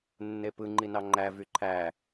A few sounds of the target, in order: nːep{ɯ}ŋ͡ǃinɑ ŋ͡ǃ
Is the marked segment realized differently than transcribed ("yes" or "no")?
no